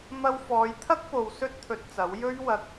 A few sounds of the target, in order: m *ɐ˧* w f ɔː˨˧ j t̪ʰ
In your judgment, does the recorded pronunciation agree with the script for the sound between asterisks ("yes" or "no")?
yes